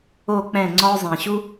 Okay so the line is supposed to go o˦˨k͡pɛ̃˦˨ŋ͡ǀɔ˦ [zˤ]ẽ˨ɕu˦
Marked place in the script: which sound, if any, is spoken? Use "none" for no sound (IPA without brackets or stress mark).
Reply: zˤ